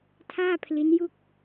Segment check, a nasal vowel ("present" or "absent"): absent